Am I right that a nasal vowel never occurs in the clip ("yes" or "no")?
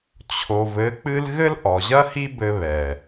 yes